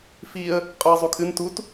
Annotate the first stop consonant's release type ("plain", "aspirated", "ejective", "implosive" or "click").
ejective